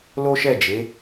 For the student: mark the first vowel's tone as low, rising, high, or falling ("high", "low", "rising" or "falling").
high